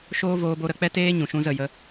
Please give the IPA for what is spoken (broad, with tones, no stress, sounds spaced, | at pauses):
ʃ oː˦ v oː˧ b o˧ ɾ ə˧ k͡p ɛ˦ t eː˦ ɲ ũ˨ ʃ ũ˧ z ə˦˨ j ə˦